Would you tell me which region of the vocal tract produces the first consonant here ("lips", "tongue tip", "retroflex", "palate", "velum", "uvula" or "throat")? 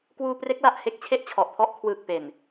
velum